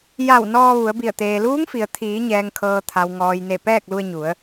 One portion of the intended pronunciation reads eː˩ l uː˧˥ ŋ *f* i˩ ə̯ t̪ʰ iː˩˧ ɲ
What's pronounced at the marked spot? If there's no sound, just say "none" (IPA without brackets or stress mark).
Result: f